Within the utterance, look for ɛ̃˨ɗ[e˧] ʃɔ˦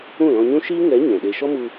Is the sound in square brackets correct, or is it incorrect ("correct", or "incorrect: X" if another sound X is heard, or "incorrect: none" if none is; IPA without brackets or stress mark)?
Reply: correct